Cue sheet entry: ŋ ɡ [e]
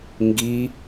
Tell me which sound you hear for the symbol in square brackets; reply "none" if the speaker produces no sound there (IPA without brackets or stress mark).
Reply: i